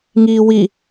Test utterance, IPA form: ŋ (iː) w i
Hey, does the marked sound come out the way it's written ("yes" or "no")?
yes